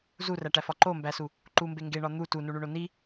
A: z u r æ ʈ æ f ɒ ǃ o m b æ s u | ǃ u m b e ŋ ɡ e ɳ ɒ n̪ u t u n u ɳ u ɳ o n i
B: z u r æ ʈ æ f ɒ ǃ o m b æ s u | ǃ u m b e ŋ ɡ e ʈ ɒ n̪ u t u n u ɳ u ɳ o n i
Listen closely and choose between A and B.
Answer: A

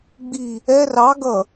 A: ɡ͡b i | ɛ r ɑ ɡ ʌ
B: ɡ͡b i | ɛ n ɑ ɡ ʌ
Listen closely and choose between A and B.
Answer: A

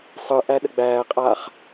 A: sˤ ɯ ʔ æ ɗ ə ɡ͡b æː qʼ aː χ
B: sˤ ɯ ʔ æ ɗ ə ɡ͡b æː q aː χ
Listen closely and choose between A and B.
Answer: A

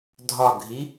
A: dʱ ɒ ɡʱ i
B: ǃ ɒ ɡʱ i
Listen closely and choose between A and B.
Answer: A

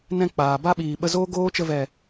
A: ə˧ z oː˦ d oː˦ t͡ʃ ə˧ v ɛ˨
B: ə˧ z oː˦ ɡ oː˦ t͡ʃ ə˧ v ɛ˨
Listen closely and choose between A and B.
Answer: B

